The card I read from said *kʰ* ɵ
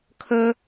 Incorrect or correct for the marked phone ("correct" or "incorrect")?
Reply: correct